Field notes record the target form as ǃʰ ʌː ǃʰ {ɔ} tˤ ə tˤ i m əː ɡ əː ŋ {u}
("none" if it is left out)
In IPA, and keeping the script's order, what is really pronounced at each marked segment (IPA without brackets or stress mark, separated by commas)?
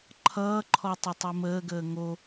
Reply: ɔ, o